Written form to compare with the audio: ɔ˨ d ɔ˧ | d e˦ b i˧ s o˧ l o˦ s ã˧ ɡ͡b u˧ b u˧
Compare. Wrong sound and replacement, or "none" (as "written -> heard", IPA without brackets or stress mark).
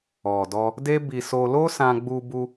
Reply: none